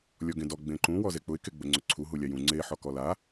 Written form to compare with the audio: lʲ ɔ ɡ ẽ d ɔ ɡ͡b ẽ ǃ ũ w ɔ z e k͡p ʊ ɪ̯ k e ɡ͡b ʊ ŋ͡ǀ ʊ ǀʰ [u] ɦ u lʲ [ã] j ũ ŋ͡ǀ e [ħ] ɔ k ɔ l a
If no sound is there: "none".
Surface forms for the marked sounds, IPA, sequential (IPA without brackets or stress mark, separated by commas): u, a, ħ